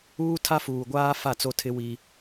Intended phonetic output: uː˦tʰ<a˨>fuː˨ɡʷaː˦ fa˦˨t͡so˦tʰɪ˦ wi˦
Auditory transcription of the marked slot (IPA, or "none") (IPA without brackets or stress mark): a˦